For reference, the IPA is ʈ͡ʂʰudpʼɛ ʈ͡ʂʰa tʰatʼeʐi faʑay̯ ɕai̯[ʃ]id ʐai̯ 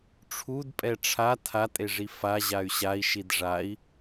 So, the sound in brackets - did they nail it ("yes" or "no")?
yes